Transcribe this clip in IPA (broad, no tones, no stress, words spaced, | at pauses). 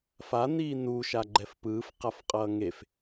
faniː nuʃa ɡ͡ǃɛfpɯːfqafqʼʌː ŋef